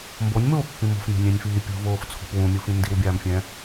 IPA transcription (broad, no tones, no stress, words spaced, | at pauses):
mbonʲmoːpːĩ mo̤fmʲa̤nʲɛ̃nʲfiː pʲṳvoːft͡sʰo̤p wũmʲufĩ ndiwbʲaːmfʲɛ̃